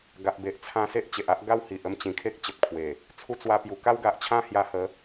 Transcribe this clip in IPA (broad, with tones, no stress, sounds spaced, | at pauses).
ɡ a˨ ʔ b e˨ ʔ t͡sʰ ã˧ s e˦ ʔ t͡ɕ e˨ ʔ a˦ ʔ ɡ a˥˧ w h i˨ ʔ ə˥˧ m t͡ɕ ĩ˨˩ kʰ e˦ k̚ t͡ɕ ə˨ p̚ kʰ w e˨˩ | t͡sʰ u˧ t͡s w a˧ p j u˨˩ k a˦ w ɡ a˨ ʔ t͡ɕʰ ã˦ h j a˧ h ə˨˦